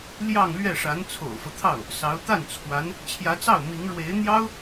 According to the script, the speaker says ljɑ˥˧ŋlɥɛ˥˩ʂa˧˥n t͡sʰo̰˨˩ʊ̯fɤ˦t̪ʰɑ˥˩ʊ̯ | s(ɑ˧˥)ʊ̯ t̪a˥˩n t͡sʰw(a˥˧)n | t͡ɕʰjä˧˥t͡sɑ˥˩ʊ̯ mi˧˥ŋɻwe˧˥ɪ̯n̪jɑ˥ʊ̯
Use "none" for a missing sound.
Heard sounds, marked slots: ɑ˧˥, a˧˥

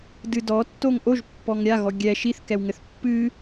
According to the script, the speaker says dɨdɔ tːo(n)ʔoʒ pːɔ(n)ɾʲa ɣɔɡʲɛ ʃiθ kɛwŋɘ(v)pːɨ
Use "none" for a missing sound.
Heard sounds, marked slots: ŋ, ŋ, θ

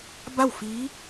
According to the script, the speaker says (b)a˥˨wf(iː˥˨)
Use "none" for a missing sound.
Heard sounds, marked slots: b, iː˧˥

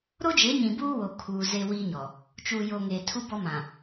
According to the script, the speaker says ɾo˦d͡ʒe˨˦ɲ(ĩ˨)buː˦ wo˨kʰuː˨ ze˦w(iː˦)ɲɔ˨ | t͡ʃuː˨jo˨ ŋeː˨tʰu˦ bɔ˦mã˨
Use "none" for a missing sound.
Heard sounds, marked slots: ĩ˨, iː˦

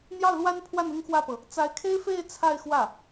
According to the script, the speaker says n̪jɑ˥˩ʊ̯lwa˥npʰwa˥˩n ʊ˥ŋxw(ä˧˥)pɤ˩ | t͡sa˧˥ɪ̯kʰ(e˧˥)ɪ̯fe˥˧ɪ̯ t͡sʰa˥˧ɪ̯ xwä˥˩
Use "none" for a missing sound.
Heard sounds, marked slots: ä˥˩, e˥

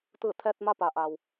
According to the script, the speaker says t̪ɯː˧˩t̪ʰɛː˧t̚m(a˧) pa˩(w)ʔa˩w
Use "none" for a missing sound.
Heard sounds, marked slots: a˧, none

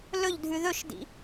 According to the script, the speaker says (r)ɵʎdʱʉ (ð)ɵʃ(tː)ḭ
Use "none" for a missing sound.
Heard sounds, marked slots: l, ð, d

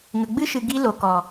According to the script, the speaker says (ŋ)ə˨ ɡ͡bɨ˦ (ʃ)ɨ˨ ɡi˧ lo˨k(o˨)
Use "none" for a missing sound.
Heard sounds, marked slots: ŋ, ʃ, ɔ˨

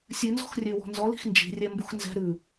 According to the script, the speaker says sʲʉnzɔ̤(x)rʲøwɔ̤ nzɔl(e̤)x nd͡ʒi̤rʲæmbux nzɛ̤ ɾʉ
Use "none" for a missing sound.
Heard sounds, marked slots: x, i̤

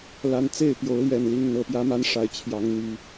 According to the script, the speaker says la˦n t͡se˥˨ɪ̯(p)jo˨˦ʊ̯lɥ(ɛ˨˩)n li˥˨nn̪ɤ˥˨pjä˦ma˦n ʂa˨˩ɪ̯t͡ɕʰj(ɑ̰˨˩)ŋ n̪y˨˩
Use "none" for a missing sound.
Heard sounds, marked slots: p, ɛ˨˩, ɑ˨˦

